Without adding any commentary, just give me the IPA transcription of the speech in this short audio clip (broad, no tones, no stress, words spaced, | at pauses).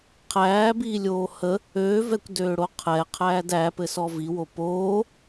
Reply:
qʰæːbiːlʲoː hə | øːvɛkʷdøːɽo qʰɛqʰæːd æpɘsɔ viwo poː